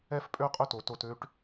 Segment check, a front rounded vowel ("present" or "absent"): present